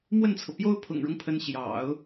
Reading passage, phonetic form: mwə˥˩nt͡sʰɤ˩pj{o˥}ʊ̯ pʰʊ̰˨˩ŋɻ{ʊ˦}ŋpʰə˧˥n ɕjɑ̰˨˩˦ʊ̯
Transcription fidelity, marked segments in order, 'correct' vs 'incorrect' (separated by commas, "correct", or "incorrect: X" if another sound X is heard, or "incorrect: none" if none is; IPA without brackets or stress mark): correct, correct